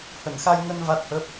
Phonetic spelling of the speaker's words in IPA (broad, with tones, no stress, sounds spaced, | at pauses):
h ə˧˩ n x a˧ j ŋ ə˧ n v a˦˥ t̚ h ə˦˥ p̚